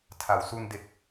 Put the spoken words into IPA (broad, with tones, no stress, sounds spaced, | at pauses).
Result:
tʰ a˩˦ w s u˧ n d e˨˩ k̚